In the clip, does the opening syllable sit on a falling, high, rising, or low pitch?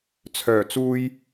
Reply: low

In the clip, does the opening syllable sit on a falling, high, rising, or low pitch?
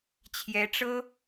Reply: rising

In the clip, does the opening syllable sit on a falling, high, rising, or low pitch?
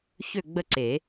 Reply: falling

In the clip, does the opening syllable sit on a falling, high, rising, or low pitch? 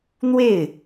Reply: falling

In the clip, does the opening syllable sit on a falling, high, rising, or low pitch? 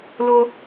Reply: high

